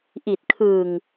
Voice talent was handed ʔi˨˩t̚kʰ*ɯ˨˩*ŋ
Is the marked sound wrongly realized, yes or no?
no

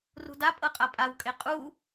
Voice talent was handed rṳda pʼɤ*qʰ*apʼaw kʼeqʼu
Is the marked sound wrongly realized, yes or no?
yes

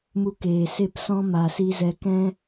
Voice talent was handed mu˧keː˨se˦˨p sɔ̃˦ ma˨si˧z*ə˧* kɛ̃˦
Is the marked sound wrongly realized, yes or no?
yes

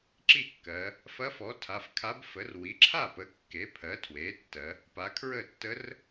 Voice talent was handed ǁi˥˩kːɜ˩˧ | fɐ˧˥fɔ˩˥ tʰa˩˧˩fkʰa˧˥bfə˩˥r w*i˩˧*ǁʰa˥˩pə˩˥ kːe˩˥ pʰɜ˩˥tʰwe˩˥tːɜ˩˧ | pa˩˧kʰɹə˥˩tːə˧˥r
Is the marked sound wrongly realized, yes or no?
yes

